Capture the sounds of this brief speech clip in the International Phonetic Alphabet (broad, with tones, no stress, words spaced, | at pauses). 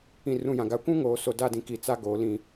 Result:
ĩ˨rũ˨jã˨ɡa˨ kʷũ˦ ŋoː˨so˨da˦˨dĩ˨ ki˨t͡sa˦ɡoː˨lĩ˦˨